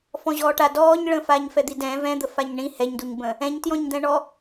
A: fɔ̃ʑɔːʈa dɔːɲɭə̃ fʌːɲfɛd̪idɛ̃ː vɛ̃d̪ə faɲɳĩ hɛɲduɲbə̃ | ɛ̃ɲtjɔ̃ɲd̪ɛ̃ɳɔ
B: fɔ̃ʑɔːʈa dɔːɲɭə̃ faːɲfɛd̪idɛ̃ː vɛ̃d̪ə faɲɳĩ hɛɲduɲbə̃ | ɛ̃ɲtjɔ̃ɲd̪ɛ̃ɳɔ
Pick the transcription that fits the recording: B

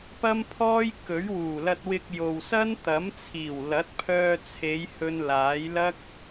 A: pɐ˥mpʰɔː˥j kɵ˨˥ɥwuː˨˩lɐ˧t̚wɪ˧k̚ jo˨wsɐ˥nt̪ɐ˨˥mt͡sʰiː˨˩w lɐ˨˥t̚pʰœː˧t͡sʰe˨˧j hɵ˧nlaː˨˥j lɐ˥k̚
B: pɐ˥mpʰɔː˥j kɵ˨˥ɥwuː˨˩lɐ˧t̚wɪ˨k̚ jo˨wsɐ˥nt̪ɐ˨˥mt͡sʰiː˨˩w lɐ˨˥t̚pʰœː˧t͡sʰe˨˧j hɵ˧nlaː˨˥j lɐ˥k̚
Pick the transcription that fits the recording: A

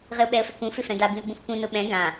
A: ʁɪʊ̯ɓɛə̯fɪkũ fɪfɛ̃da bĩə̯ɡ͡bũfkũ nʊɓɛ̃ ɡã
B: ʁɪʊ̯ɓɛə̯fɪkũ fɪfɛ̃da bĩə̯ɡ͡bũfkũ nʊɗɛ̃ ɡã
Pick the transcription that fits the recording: A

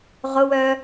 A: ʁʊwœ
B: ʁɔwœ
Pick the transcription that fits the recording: A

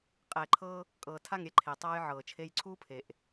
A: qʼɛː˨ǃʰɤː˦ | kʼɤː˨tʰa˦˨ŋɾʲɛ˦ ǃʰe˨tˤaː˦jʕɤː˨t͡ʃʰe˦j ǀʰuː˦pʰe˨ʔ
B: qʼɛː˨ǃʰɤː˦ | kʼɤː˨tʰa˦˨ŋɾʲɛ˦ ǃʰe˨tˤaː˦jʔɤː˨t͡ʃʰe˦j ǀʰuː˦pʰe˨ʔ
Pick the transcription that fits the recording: A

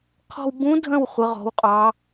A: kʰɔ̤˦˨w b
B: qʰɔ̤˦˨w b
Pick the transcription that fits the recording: B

